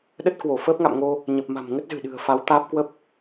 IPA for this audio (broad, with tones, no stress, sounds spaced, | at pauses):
ɗ ə˦˥ t̚ k w o˧˩ f əː˦˥ p̚ ŋ a̰˧˨ m ŋ o˧ | ɲ ə˨˩ p̚ m a̤˨˩ m ŋ ə˦˥ t̚ z ɨ̤˨˩ ɗ ɨ̤˨˩ ə̯ f a˨˦ w t̪ aː˦˥ p̚ k w ə˦˥ p̚